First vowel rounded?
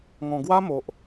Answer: yes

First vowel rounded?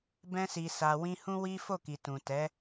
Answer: no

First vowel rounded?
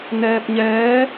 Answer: no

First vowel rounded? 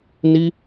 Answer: no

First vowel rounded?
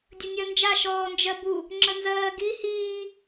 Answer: no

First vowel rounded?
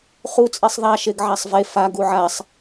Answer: yes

